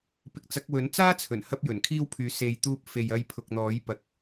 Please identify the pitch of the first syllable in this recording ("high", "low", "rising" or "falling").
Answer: rising